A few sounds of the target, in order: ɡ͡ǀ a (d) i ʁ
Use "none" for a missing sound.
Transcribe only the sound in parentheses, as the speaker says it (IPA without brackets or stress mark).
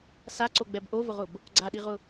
ɗ